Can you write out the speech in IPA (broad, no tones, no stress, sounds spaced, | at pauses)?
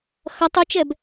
x ɐ tˤ u t͡ʃ ɛ b